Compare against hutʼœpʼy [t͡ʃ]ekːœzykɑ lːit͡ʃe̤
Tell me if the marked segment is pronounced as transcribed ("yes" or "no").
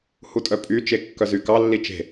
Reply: yes